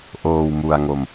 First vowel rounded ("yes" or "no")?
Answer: yes